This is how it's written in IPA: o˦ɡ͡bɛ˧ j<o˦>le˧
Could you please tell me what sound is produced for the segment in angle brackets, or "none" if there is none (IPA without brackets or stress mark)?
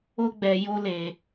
o˦